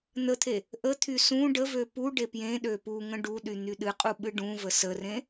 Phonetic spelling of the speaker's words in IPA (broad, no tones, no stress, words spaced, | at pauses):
n̪ət̪ʰe | ʔət̪ʰy sũ ɖəvø pu ɖepjẽɗø puŋə̃ ɖuɗy n̪yɗɨqʼu ɓɨɖũvə sərẽ